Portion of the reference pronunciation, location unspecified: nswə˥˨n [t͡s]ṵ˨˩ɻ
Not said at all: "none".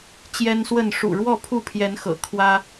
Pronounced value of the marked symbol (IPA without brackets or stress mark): ʂ